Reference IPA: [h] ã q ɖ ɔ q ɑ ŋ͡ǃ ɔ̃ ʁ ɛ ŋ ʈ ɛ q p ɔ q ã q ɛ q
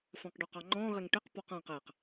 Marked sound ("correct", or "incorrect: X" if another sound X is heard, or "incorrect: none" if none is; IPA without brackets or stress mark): incorrect: f